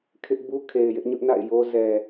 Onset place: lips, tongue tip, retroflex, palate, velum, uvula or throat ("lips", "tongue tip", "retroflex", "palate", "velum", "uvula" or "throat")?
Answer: velum